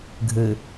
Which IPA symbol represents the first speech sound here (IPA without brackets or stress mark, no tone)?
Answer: ɡʱ